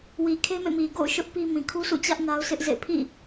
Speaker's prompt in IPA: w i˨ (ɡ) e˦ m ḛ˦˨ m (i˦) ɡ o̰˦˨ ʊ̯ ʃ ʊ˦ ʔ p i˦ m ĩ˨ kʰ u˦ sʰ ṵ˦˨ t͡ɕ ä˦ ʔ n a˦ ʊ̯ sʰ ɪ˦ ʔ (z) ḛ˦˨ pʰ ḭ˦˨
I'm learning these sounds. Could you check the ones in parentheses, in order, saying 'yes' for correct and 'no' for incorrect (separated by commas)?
no, no, yes